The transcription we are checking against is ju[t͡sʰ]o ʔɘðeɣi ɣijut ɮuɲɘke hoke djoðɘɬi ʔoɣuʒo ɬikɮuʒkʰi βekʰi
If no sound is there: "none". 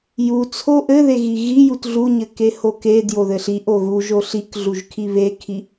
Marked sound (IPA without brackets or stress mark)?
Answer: t͡sʰ